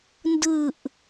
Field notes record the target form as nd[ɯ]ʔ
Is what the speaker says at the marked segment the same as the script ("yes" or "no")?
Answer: yes